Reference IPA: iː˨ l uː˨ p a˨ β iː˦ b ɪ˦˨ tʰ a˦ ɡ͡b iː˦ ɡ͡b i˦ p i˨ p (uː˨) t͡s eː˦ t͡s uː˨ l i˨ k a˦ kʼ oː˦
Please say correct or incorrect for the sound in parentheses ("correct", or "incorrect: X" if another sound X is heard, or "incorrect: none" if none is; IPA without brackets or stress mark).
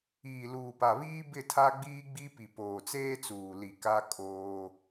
incorrect: oː˨